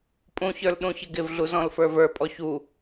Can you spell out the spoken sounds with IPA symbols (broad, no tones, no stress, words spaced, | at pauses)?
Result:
pʼũçə˞l ɗũçɪɡɪvɮu zɔ̃lfə˞və˞pʼɔ çu